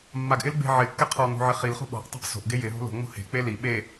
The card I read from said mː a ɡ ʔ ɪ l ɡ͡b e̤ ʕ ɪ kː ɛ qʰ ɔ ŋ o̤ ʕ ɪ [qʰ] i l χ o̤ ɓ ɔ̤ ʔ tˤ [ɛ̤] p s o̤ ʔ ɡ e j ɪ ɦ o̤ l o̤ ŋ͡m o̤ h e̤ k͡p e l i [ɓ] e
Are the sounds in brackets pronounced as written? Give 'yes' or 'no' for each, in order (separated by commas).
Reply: no, no, yes